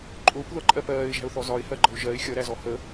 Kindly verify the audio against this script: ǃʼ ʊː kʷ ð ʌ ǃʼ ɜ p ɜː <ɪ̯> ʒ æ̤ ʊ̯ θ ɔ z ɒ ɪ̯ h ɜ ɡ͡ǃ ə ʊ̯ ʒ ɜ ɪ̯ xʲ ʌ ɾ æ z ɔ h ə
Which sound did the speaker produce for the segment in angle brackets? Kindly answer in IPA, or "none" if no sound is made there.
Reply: ɪ̯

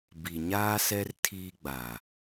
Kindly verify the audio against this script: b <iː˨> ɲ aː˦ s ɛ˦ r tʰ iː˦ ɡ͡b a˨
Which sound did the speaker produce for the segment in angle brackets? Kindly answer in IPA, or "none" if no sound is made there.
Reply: i˨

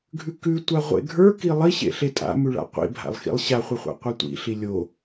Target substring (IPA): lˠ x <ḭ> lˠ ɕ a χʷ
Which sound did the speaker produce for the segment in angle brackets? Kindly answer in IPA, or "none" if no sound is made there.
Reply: ḭ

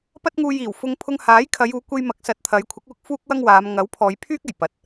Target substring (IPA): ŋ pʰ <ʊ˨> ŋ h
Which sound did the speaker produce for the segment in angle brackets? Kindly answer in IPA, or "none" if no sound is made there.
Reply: ʊ˧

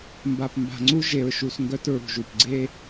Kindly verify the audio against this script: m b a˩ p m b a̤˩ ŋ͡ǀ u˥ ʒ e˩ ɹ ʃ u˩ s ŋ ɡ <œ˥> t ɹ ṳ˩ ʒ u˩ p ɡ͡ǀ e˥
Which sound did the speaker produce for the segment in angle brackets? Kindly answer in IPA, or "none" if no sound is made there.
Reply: œ˥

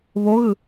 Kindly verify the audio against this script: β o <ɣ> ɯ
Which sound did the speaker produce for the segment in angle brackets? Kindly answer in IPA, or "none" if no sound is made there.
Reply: ɣ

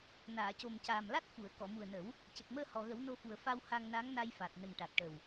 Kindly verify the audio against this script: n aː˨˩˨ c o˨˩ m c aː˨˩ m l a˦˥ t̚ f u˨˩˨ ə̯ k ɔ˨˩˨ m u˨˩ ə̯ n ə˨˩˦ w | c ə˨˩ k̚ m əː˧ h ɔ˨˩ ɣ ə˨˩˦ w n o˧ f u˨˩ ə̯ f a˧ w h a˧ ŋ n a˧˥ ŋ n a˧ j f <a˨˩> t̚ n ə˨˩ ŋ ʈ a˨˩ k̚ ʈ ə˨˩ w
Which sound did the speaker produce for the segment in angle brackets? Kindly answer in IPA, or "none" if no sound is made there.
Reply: a˨˩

